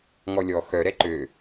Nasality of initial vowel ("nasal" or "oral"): oral